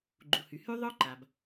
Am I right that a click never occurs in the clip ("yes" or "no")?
no